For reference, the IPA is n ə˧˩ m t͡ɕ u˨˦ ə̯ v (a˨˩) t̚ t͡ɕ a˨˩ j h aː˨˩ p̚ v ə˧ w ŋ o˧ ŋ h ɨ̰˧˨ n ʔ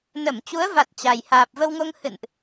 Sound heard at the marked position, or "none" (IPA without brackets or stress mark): a˨˩